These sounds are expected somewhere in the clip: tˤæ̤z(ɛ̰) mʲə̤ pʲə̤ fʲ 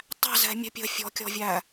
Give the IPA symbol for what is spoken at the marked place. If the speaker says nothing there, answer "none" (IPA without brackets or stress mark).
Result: ɛ̤